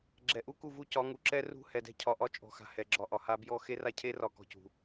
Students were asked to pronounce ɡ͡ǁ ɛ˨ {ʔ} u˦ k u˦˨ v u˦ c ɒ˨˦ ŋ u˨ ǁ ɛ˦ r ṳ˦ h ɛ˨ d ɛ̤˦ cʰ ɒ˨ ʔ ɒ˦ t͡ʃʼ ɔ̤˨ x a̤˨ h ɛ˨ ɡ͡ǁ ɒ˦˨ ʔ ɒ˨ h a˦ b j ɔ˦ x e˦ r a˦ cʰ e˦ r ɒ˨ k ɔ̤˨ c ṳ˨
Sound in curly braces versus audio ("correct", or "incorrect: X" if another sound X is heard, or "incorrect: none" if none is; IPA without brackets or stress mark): correct